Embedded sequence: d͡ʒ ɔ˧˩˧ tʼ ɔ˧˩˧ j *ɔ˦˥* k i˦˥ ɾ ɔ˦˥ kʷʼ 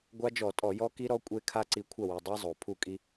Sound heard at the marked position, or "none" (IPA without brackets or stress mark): ɔ˦˥